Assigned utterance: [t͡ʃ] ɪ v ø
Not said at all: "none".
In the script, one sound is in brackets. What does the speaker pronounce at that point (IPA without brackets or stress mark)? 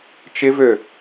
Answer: t͡ʃ